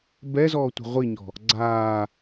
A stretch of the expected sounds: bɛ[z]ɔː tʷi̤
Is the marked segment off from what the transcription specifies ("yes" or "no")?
no